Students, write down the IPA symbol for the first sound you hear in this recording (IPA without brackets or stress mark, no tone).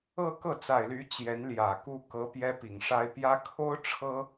ɤ